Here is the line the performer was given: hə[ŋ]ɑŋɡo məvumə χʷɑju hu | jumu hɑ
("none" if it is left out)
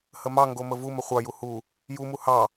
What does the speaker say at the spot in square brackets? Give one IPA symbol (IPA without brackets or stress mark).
m